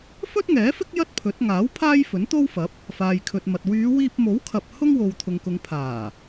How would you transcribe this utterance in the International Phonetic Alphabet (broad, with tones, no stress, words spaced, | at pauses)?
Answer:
fɵ˥t̚ŋɛː˨˥fɪ˥k̚ jɐ˥t̚pʰɵ˨˥t̚ ŋaː˨˥w pʰaː˥j fɵ˨˥nt̪o˥wfɐ˨˥p̚ | faː˨jkʰɵ˨t̚mɐ˨t̚ wyː˨˧wiː˧p̚mo˨˥wkʰɐ˨p̚ hʊ˥ŋ wo˨wt̪ʰʊ˨ŋkʊ˨ŋ pʰaː˨˩